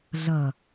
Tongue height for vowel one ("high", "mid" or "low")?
mid